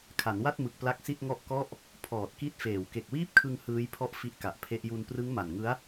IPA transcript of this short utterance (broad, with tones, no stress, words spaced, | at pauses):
kʰa˩˦nwa˥˩t̚mɯ˨˩k̚ pla˦˥k̚si˥˩t̚ ŋɔ˥˩ʔ kɔ˥˩ʔ | pʰɔː˨˩t̚ki˦˥t̚feː˨˩w ke˨˩k̚wiː˥˩p̚kʰɯ˧ŋ hɯː˦˥jpʰɔ˥˩ʔ fi˦˥ʔka˨˩ʔpʰe˦˥ʔ ju˧n prɯ˦˥ŋma˨˩nŋɯ˦˥a̯